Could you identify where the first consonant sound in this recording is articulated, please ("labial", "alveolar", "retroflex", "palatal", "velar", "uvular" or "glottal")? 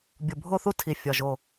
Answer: labial